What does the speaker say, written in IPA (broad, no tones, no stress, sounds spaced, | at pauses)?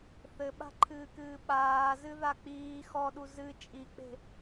θ ɘ ɓ a̤ ǃʰ ɨː k ɨː ɓ aː z ɨ ð a k͡p iː x ɔ ɗ u z ɨ t͡ʃʼ i k͡p e̤